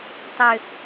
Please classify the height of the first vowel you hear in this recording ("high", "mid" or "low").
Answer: mid